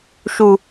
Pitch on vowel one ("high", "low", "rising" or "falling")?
low